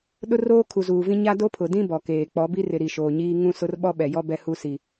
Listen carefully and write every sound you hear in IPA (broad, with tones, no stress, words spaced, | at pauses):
ɗʊ˦roː˦ kʰu˨zuː˨vĩ˦ ɲa˦do˦pʰʊ˨dĩ˦ bɔ˨keː˨ k͡pɔ˨˦bi˦rɪ˨ ɾi˨ʃoː˨ɲiː˦ ŋũ˦sʊ˦r ɓɔ˦ɓɛ˨jɔ˦ bɛ˦hu˦ si˨